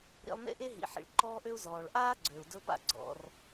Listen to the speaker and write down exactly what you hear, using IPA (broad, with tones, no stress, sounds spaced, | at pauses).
ɾ ḭ˧ lˠ n ḛ˥ ʔ e˥ ɦ ḭ˩ ħ ḭ˩ ɭ ǃ ɔː˧ ʔ ø˧ u̯ z ɔː˩ ɭ ʔ aː˥ ɡ͡ǀ ø˩ u̯ d ɵ˧ p a̰˧ ɡ͡ǀ ɔ̰˩ r